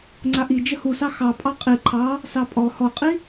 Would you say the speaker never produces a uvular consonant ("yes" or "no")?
no